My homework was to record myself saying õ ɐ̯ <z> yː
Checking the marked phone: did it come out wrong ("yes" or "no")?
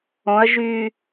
yes